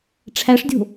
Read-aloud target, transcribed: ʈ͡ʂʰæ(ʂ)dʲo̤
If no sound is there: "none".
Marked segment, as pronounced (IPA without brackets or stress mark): ʂ